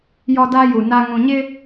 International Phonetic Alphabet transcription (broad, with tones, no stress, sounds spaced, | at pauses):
j ɔ˦ d a˦ j u˨ n a˦ ŋ ũ˨ ɲ ɪ˦